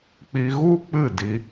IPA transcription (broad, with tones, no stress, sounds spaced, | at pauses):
k͡p i˧ ɣ u˦ k͡p ɨ˦˨ d i˧